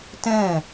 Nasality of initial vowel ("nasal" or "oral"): nasal